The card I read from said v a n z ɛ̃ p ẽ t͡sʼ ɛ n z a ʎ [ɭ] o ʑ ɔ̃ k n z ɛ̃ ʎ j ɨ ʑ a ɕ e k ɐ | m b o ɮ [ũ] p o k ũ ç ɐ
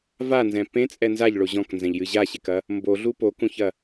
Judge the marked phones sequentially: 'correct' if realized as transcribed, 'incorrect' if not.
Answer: correct, incorrect: u

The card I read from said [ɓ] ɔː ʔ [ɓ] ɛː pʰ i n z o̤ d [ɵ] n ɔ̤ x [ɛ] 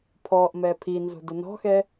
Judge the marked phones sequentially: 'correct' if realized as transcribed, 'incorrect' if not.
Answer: incorrect: pʰ, incorrect: m, incorrect: ʊ, correct

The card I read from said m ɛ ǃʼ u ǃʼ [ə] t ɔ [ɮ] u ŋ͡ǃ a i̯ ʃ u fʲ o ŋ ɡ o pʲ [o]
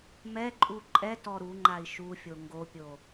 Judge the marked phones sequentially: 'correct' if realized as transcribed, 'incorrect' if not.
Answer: incorrect: ɛ, incorrect: ɾ, correct

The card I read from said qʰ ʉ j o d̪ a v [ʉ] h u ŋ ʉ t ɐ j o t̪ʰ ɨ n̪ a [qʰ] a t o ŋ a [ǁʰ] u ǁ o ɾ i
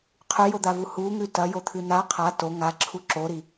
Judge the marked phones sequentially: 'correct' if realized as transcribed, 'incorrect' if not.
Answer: incorrect: u, correct, correct

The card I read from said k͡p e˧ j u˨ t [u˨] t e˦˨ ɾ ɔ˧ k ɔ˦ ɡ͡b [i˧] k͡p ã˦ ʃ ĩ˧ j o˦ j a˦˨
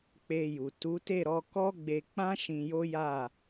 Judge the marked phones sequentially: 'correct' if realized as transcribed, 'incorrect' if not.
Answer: incorrect: u˨˦, incorrect: e˧

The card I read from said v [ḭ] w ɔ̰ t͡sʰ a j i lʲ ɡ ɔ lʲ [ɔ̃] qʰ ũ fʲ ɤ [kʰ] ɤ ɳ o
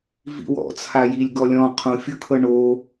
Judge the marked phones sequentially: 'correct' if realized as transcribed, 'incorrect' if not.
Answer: correct, correct, correct

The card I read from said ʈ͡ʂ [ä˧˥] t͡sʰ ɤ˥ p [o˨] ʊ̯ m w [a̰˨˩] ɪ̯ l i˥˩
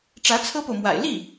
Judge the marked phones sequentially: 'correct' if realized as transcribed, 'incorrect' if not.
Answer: correct, correct, correct

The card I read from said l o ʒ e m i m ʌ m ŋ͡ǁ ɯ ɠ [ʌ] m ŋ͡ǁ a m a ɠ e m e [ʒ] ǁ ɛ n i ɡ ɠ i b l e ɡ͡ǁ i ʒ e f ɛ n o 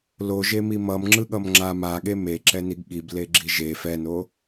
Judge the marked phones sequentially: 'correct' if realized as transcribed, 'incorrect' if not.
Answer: correct, incorrect: none

